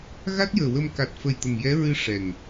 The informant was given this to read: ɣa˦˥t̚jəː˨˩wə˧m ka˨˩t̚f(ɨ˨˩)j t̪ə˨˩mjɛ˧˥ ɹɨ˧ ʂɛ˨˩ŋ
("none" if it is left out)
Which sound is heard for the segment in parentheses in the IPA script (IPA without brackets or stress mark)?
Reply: ə˨˩